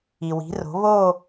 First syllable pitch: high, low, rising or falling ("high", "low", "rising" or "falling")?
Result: low